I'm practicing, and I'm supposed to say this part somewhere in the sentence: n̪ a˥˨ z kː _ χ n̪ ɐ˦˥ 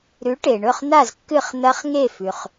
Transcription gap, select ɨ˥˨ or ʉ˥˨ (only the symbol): ɨ˥˨